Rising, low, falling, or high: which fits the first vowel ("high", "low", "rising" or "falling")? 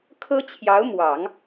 high